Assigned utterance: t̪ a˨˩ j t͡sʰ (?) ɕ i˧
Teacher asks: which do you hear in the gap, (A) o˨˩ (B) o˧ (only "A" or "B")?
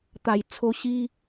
B